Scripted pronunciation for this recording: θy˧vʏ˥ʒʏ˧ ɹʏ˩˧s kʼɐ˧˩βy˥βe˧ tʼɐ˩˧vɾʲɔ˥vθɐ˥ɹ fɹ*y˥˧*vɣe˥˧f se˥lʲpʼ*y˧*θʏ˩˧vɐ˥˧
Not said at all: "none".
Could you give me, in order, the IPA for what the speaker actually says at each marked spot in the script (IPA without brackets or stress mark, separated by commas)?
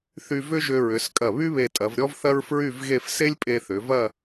y˥˧, e˧